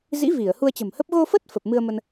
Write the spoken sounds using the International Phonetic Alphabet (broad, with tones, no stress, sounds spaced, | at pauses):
z ḭ˧˥ v i˧˩ ə̯ h u˧ ə̯ t͡ɕ ə̤˨˩ m h ə˦˥ p̚ ɣ o˧ f ə˦˥ t̚ f ə˨˩ p̚ m ɨ˧ ə̯ m ə˧ n